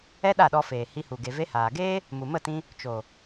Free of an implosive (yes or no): no